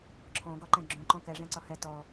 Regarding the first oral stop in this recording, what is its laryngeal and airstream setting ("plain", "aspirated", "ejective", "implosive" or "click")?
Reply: click